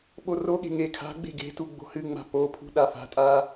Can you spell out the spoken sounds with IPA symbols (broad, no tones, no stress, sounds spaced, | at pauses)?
ɓ o r o ɠ e̤ ŋ e kʰ a̤ ɡ͡b e̤ ɡ e̤ t u ɡ͡b o̤ h ɨ ŋ͡m a̤ p o pʰ ṳ ɗ a f a̤ tʼ a